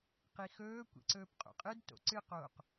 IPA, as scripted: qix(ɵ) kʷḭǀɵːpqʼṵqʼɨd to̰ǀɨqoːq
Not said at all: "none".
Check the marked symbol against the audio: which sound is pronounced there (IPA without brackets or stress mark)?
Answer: ɵː